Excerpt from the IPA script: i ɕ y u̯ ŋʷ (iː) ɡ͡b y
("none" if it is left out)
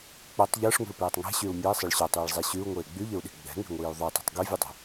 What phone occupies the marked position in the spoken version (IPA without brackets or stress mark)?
eː